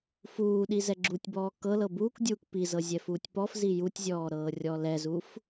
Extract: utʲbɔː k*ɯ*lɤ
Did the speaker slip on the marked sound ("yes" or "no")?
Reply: yes